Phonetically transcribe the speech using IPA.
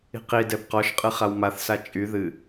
i̤qi dɛbqɔʃqʼɨ χawmaθsa t͡ʃʼy ðɨ

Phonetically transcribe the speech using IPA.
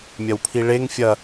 mʲɐwpʰiɭeŋ fʲɐ

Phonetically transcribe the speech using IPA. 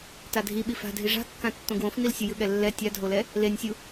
tadʱi ɓifa̤dʱi ʐa̤kːã tːõɡwõfnil sʲɯjɯɠɛlːɛ tʲadʱolɛ | lenʲsʲu

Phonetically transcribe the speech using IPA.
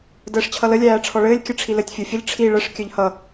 dəːʂt͡ɕʰʌlə lʲæːʈ͡ʂʰɔɭɘːlʲ kʲɘʈ͡ʂʰilɘtʲ fʲofʲəʎ ʈ͡ʂʰi ɭəʂ kʲœʎhʌ

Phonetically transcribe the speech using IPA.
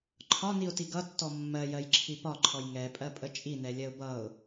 ǃʰɒniʊ̯ti ɡʌtːɔ mːɜjɜjǁʰi pɒǃʰɔj ŋɛpʼɜpʼə t͡ʃʼinɛlʲɜʊ̯ bʌʊ̯

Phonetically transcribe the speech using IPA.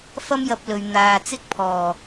fɐ˥mjɐ˧p̚lɵ˨ɥ n̪aː˨ t͡sɪ˥k̚pʰɔː˨˩

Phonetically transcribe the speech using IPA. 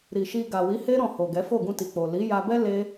ɾi˨ʃi˧ ɡa˨wi˨˦he˦ ɾɔ̃˦˨ho˨ɡɛ˨˦ fo˦˨ɡũ˧ti˨k͡po˨ li˨˦ja˧bɛ˦ le˦

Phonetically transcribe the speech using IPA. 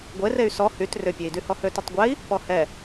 ɡʷerey̯ sɔ hyt rʏpʲei̯dy hɔhøtʏtˤɡʷɛi̯ | pɔhɛ

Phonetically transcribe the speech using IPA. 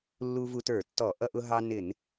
lːu˧ vu˧tə˞˧˩˧tːɔ˧˩˧ ʔʌ˧ʔʊ˧ɦɑ˧ nɪ˧˩˧n

